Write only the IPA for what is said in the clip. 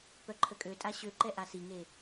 p œ ǃʰ ə kʼ ø tʼ a ɕ ø ǃ ɛ ʔ a s i ŋ e

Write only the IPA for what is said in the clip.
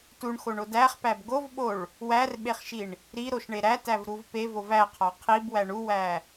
t u ɳ x o ɳ o d æ χ p æ b ɡ o v ɓ o ɭ | w æ r ɓ e χ ʃ i ɳ | ɾ i ɾ o ʃ ɳ e ɾ æ t æ v ɾ u v p e v o v æ qʰ ɒ qʰ i b w æ ɳ u w æ

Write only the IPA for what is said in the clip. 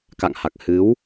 k a̰˧˨ ŋ h a˨˩ k̚ h ɨ˨˦ w

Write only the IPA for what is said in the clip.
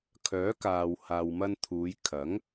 kʰ œː˨˥ k aː˨ w h aː˨ w m ɐ˧ n t̪ʰ uː˨˧ j kʰ ɐ˨˥ ŋ

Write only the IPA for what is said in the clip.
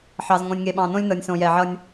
ħ ɑ˨ z ŋ õ˨ nʲ ŋ e˨ ɓ ɑ̃˨ n õ˦ lʲ n ɤ˨ nʲ s õ˨ j ɛ˨ ʕ ʌ˦ nʲ

